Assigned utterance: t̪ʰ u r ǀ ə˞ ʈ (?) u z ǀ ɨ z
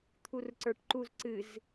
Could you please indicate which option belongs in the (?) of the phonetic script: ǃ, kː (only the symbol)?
ǃ